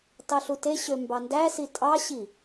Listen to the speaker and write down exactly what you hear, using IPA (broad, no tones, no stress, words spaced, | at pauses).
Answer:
tɑɬuteɕø mbɑndæsi tʼɑɕi